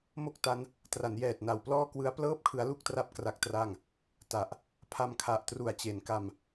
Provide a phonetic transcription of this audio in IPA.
m o˥˩ k̚ t a˦˥ n | t r a˩˦ n j ɛː˨˩ t̚ n a˨˩ w p l ɔː˥˩ k w ɯ˦˥ a̯ p l ɤː˥˩ p̚ kʰ ɯ˦˥ a̯ l u˥˩ k̚ t r a˦˥ p̚ k r a˦˥ k̚ t r a˥˩ ŋ | t a˨˩ ʔ | pʰ a˧ m kʰ a˨˩ ʔ t r u˨˩ a̯ t͡ɕ e˩˦ n k a˧ m

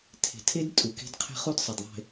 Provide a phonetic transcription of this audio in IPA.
tʰ e̤˨ tʰ e˦ d tʼ u˨ k e̤˦ d qʰ e̤˦ χ u˦ d sˤ ɐ˨ d ðˤ e̤˨

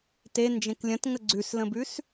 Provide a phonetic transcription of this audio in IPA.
t e n d͡ʒ ẽ k lʲ ə̃ t ŋ ə ɡ͡ǀ ʉ s l ə̃ b ʉ s

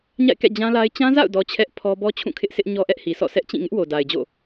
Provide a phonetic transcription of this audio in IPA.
ɲ a̰˦˨ ɪ̯ k ɛ̰˦˨ d͡ʑ ã˦ l a˦ ɪ̯ t͡ɕ ã˦ z a̰˦˨ ʊ̯ d ɔ˨ t͡ɕʰ ɛ˦ ʔ pʰ ɔ˦ b ɔ˦ t͡ɕʰ ũ˦˨ kʰ ɪ˦ ʔ sʰ ɪ˦ ʔ ɲ ɔ˦ ʔ ɛ˦ ʔ h i˨ sʰ ɔ̰˦˨ s ɛ˦ ʔ t͡ɕ ĩ˦˨ ŋ ɪ˦ ʔ w o˨ d a˨ ɪ̯ d͡ʑ o̰˦˨

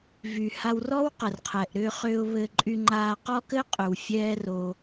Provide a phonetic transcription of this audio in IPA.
v y˨ h a˧ w r ɔː˦ w q ə˨ r qʰ ɛ˨ ʔ ɾ ʏː˧ χ ʏː˧ ʊ̯ β ɘ˧ ǃʼ y˧ ŋ͡ǃ aː˧ q ɔ˦ k ɘ˦ qʼ ʏ˨ w fʲ ɛː˦ r o˧

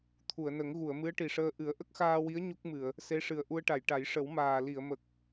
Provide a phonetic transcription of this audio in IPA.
t̪ʰ u˨˩˨ ə̯ n ə˨˩˦ ŋ ɣ u˨˩˨ ə̯ m ɨ˧˥ ə̯ ʈ i˨˩ ʂ əː˧ ʔ ɨ˨˩˦ ə̯ ʔ ə˦˥ k̚ x aː˧ w i˧˥ ə̯ ɲ u˦˥ k̚ m ɨ˨˩˨ ə̯ | s e˧˥ ʂ ɨ˨˩ ə̯ ʔ u˧ ə̯ ʈ a˨˩˨ j ʈ a˨˩˦ j ʂ ə˨˩˦ w m aː˨˩ l i˨˩˨ ə̯ m ə˨˩ k̚

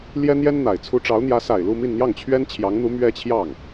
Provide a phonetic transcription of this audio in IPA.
l j ɛ˥ n̪ j ɛ˥ n n̪ a˨˩ ɪ̯ t͡sʰ u˥ ʈ͡ʂ ɑ˧˥ ʊ̯ n̪ j ä˧˥ s a˨˩ ɪ̯ l u˥˧ m i˥˧ n n̪ j ɑ˥˩ ŋ t͡ɕʰ ɥ ɛ˥ n t͡ɕʰ j ɑ˧˥ ŋ n̪ u˧˥ m ɥ ɛ˥ t͡ɕʰ j ɑ˥˩ ŋ

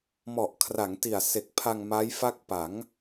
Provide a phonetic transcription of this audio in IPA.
m ɔ˨˩ ʔ kʰ r a˩˦ ŋ t i˨˩ a̯ s e˨˩ k̚ pʰ a˧ ŋ m a˦˥ j f a˥˩ k̚ p a˩˦ ŋ

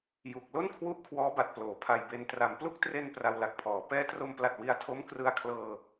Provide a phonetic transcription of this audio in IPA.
j u˨˩ k̚ l o˥˩ n kʰ w u˦˥ ʔ kʰ w ɔː˦˥ b a˨˩ t̚ p l oː˩˦ pʰ a˧ j b e˧ n t r a˩˦ m p l u˦˥ k̚ t r e˧ n p r a˧ w l a˨˩ k̚ pʰ ɔː˩˦ p ɛː˦˥ t r o˧ m p l a˨˩ t̚ w i˧ a̯ tʰ o˦˥ m k r ɯ˧ a̯ kʰ l ɤː˧

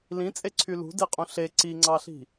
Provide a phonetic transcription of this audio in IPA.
l ĩ t͡sʼ e ǀʰ y l ṳ d e qʼ ũ ɬ e ǀ i ŋ͡ǀ ɑ ɬ i̤

